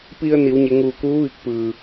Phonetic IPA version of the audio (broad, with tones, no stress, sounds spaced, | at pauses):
p i˧ ə̯ n i˩˧ w ɲ e˩˧ ŋ uː˧˩ k uː˧˥ ʋ i˧˩ k̚ p ɯː˩